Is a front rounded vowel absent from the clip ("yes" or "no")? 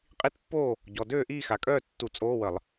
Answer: no